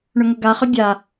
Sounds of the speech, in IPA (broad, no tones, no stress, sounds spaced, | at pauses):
ɳ ʏ ŋ ʊ ɡ a χ ʏ bʲ a